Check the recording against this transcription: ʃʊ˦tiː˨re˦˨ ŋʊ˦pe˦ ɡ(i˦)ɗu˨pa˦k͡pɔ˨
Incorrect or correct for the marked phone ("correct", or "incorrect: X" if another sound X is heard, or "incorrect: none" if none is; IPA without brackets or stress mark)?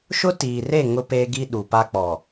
correct